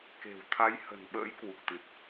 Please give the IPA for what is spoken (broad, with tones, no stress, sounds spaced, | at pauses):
k e̤˨˩ w t̪ʰ a˨˦ j h ə̤˨˩ n ɓ ə̰ː˧˥ j k w u˨˩ k̚ t̪ ɨ˨˩ t̚